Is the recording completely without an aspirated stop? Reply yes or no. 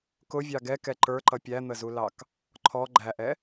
no